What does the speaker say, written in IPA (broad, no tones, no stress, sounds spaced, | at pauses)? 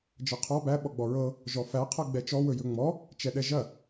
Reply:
d͡ʒ ɤ qʰ ɔ b æ ɓ ɔ ɡ͡b ɔ ɹ ɤ | ʒ ɔ f æ qʰ ɤ ɡ͡b ɛ t͡ʃ ɔ w ɵ j ɵ ŋ͡m ɔ | t͡ʃ ɛ ɗ ɛ ʒ ɐ